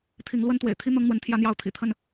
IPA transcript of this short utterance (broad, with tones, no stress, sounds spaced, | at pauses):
t̪ʰ i˨˦ ŋ l w ə˦ n t̪ w ḛ˨˩ ɪ̯ t̪ʰ i˦ n̪ ɤ˦ ŋ n̪ w ə˨˦ n t̪ʰ j ä˦ n̪ j ɑ˦ ʊ̯ t̪ʰ ḭ˨˩ t̪ʰ ə˥˨ n